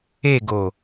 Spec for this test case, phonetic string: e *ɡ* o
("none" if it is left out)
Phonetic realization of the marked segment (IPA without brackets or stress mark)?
ɡ